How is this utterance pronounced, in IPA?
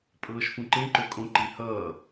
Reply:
pʼ ɤː ʃ f ũ ǃ ẽ ǃ ø kʼ õ ǃ i h ʌː

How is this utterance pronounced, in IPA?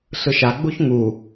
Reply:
ɬ ɯ ʃ a ɡ͡b u ç ŋ u

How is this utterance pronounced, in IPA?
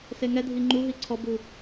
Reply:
s e ŋ ɛ dʱ i ŋ͡ǃ u ɦ i ǀʰ ɔ b u

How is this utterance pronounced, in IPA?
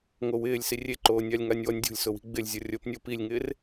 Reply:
ŋ o w ɪː lʲ s i rʲ e ǃ oː nʲ a lʲ ŋ a nʲ w ɔ nʲ dʲ o̤ lʲ s ʊ w i̤ ɡ͡b ɪ lʲ zʲ ɔ rʲ o p nʲ o p i lʲ ŋ ɪː r

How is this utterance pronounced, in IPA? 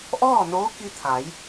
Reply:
ʔ ɔː˥˨ n oː˧˥ k i˧ t̪ʰ a˩˧ j

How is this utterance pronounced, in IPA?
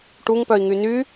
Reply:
ʈ u ŋ p œ i̯ ŋ y n y

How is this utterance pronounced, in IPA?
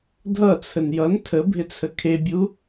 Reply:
dʱ ʌ t͡sʰ ə n j ʌ n tʰ ə bʱ ɪ t͡sʰ ə kʰ e bʲ u

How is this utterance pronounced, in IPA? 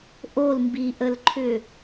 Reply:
ʔ o l m b i ʔ ə l ǃʰ ʏ

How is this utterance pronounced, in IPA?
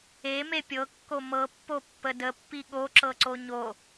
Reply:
e m e pʲ ɤ kː o m ɤ pː o pː ə d ə pː i ɠ o ǁ ɤ ǀ o ɲ o

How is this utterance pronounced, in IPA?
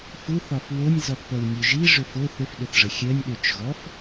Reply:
f u θ ɒ f w o nʲ z ɔ θ p ɜ w nʲ ø ʒ i ʐ ʏ f o θ ʏ f ɗ ʏ θ ʐ ə xʲ ɜ nʲ ɗ ø t͡ʃ ɣ ɔ f

